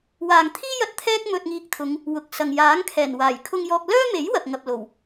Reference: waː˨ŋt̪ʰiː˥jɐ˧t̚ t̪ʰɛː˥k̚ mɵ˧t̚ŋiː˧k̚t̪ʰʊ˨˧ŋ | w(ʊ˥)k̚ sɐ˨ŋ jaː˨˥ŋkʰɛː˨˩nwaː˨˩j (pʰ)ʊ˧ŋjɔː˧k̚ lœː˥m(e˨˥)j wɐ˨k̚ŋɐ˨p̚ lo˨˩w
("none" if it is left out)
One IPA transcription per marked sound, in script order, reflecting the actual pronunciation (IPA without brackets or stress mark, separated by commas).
ʊ˨, kʰ, e˨˥